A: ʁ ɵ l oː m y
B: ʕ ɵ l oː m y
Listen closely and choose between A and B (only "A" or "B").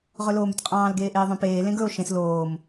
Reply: A